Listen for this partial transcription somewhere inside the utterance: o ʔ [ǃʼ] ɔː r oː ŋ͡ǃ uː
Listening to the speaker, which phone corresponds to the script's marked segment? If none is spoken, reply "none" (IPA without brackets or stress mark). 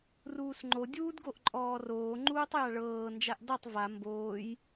ǃʼ